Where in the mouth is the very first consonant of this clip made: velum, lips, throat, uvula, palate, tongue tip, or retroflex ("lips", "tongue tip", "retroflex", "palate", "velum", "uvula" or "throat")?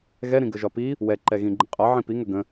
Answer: velum